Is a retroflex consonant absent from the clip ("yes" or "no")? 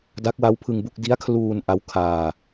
yes